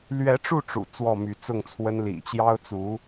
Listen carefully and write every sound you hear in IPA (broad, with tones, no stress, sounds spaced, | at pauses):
l ɥ ɛ˧˥ ʈ͡ʂ u˥˩ ʈ͡ʂ ṵ˨˩ t͡s w ɔ˥˩ m y˧˥ t͡s ʊ˥˩ ŋ t͡sʰ w ə˥ n l ḭ˨˩ t͡ɕ j ɑ˥ ʊ̯ t͡s u˧˥